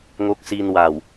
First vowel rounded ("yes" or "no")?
yes